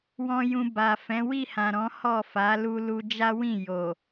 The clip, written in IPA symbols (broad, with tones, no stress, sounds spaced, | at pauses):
w ɔ̃˨ j ũ˨ b a˨ f ɛ̃˨˦ w i˦˨ h ã˨ ɾ ɔ̃˨˦ h ɔ˦˨ f a˨˦ l u˧ l u˧ d͡ʒ a˦ w ĩ˦˨ j o˨